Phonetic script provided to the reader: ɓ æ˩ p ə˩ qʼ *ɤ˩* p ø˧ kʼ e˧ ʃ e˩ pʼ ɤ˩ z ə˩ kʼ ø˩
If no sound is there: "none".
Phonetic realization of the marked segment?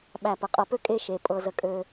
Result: ɤ˩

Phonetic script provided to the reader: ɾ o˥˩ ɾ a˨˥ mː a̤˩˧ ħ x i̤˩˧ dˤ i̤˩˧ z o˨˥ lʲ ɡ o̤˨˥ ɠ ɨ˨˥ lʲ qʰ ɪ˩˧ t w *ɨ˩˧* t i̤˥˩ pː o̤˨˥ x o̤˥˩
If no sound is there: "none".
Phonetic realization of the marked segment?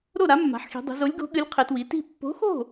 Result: i˩˧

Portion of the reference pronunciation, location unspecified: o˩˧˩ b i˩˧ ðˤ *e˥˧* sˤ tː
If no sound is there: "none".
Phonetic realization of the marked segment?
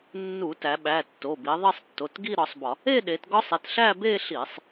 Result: e˥˧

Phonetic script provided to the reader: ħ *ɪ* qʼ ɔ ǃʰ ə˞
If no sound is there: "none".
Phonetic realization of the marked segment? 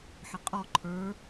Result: ɪ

